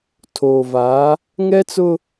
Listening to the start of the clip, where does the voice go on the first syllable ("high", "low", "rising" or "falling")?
low